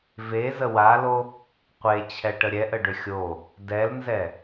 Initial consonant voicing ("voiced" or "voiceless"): voiced